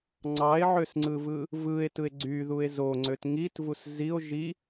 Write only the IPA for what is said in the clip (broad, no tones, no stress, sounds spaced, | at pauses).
ŋ͡ǀ ɑ e̯ ʕ ø s ŋ͡ǀ ɯ v ɯ | v ɯ e̯ t ɯ e̯ ɡ͡ǀ y ð u e̯ z o ŋ͡ǀ ø t ŋ i t v u s z i o̯ ʒ i